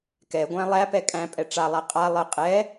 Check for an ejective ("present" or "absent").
present